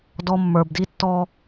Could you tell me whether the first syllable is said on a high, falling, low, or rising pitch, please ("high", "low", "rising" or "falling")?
low